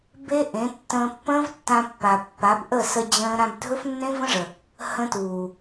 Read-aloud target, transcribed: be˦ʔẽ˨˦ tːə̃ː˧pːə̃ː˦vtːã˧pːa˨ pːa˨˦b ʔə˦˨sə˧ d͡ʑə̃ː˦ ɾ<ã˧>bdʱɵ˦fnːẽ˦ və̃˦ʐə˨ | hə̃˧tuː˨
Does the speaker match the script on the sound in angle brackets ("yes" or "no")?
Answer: yes